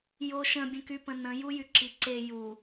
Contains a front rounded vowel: yes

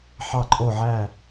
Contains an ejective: yes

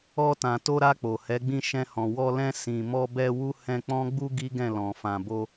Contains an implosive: no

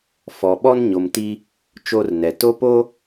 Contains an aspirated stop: no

